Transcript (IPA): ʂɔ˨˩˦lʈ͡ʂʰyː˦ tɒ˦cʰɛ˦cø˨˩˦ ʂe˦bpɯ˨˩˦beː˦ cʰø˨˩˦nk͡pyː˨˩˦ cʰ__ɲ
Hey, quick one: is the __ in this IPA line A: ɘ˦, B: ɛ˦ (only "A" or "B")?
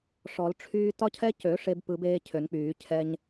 B